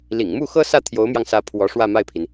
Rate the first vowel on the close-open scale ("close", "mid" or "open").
close